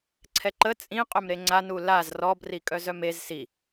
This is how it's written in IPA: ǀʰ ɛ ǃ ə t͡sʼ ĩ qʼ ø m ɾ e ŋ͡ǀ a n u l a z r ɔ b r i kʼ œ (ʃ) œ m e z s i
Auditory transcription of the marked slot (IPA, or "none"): z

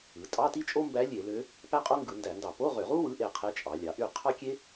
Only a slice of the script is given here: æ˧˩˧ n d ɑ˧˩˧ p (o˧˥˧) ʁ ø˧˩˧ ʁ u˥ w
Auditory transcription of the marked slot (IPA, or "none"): o˧˥˧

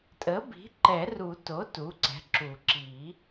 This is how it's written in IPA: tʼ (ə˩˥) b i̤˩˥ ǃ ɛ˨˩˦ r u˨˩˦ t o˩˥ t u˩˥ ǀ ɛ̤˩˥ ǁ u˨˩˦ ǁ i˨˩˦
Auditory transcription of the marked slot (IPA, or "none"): ə˩˥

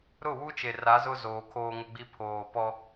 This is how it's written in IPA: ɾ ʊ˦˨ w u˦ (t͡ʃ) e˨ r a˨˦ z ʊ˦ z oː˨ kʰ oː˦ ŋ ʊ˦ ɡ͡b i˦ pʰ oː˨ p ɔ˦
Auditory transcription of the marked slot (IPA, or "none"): t͡ʃ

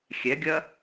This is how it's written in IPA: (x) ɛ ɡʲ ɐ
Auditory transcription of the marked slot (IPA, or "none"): xʲ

